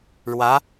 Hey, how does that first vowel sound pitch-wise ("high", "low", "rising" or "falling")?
rising